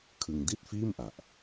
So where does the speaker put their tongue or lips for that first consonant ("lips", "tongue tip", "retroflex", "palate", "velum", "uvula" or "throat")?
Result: velum